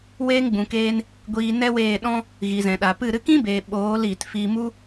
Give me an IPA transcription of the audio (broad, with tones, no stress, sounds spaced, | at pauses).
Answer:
w eː˧ ŋ ɡ͡b ũ˨ k eː˧ n | ɡʷ iː˧ n ɛ˦ w eː˦˨ ɗ ɔ̃˦ | ɣ i˨ z ɛ̃˨ ɗ a˨ p ɨ˦˨ ɾ ɨ˧ k ĩ˦ b eː˨ ɓ oː˨˦ l iː˨ t f iː˧ m u˦